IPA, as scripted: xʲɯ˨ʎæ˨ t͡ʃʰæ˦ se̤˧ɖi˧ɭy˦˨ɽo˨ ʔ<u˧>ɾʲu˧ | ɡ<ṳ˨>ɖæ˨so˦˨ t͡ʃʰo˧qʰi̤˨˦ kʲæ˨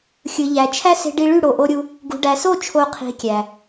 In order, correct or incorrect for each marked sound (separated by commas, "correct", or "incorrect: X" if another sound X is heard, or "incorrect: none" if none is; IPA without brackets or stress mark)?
incorrect: o˧, correct